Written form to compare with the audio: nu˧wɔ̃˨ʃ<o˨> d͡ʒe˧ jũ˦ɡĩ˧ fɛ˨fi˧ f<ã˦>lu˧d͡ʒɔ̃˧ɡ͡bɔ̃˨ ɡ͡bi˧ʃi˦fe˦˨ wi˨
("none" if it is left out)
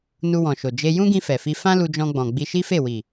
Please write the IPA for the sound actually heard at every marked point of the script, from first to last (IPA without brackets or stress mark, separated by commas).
o˨, ã˦